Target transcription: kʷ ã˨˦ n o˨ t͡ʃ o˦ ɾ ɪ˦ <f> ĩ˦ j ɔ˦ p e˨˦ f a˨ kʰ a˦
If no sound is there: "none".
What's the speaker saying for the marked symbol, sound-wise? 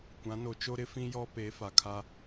f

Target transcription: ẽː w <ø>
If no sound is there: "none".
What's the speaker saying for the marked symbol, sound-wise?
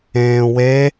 e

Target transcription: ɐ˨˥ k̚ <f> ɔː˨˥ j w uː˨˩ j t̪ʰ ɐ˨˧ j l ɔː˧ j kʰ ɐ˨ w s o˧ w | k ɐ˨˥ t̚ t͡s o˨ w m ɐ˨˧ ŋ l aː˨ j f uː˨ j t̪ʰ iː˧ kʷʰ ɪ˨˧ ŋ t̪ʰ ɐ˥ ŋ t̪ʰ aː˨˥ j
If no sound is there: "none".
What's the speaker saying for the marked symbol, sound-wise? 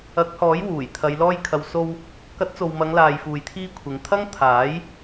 h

